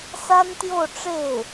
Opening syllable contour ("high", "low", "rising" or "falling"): high